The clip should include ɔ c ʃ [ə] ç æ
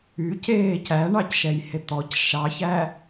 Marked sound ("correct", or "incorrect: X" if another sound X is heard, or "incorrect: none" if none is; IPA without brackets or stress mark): incorrect: ɑ